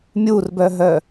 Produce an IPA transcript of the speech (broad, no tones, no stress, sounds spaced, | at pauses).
mʲ u r b œ ɦ œ